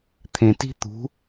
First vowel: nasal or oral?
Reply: nasal